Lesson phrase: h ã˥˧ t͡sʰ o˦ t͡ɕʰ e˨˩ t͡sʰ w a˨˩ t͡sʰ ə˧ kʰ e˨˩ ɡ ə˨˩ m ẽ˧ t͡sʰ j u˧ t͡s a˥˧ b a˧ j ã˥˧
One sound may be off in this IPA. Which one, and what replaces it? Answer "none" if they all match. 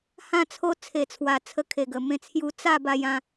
t͡ɕʰ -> t͡sʰ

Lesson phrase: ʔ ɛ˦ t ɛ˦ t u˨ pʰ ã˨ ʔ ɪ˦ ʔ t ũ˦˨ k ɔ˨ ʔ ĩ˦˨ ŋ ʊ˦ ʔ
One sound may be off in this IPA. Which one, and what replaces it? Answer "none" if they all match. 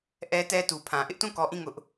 none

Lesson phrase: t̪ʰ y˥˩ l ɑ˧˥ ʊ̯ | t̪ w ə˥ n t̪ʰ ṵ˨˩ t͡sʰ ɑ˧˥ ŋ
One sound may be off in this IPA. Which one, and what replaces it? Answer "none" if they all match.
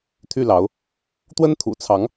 none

